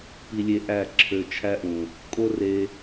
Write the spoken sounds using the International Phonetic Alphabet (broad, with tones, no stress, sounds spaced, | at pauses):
p i˧ lʲ e˧ ʔ æ˦˨ ǁʰ ø˧ t͡ʃʰ æ˦ ʔ ũ˨ | kʼ o˦ r e˧